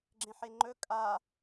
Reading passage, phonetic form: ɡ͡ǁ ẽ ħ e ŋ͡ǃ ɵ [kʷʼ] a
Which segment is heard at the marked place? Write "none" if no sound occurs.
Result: kʼ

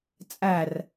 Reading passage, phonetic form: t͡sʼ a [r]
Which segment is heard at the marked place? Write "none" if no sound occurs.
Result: r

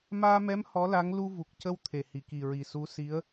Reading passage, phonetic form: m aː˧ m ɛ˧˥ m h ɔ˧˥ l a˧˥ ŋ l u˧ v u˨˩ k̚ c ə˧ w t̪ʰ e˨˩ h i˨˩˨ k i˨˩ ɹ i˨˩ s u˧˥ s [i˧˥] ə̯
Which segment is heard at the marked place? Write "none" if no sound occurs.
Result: i˧˥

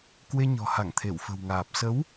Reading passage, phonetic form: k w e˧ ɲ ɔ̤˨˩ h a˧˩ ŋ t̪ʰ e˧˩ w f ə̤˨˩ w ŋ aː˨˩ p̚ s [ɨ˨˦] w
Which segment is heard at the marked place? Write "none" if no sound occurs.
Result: ə˨˦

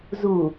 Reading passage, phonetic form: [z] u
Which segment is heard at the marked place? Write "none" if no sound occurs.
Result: z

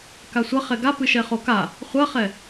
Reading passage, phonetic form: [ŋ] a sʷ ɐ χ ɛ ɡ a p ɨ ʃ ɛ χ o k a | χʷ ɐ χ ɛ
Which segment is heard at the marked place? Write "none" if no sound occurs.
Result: k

